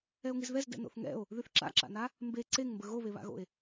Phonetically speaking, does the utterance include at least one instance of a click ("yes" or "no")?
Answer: yes